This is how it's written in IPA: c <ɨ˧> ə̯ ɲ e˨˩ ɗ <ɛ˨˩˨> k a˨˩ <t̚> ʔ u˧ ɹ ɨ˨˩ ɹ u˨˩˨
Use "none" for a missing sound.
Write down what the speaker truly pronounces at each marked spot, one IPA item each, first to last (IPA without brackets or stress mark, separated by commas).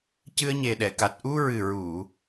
ɨ˧, ɛ˨˩˨, t̚